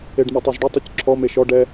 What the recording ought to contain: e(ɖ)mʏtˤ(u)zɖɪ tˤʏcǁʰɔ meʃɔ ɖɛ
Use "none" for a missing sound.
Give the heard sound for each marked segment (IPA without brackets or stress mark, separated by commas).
ɖ, ø